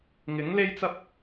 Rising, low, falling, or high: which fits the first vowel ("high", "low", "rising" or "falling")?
rising